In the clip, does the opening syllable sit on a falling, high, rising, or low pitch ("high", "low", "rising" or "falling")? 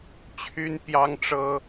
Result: high